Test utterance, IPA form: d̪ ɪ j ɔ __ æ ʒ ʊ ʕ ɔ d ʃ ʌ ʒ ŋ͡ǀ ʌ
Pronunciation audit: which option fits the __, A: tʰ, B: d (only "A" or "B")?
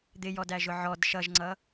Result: B